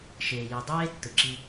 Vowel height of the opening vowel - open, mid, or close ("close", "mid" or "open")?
mid